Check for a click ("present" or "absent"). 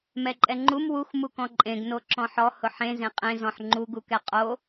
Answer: present